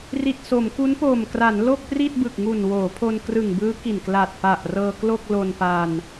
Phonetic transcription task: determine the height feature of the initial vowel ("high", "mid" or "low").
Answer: high